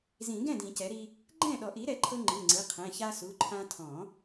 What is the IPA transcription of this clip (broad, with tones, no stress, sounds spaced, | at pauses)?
z ĩ˨˩˦ ɡ ɛ̃˥˩ d ĩ˨˩˦ c ɛ˩˥ ɾ i˦ | ɡ͡ǃ ɛ̃˥˩ ɗ ɔ˨˩˦ ʔ i˩˥ ɾ ɛ˩˥ ǃʰ ɤ˦ ŋ͡ǃ ɯ˩˧˩ ŋ͡ǀ ɯ˩˧˩ qʰ ɛ̃˩˧˩ ç a˦ s u˩˧˩ ǃʰ ã˦ tʰ ɔ̃˨˩˦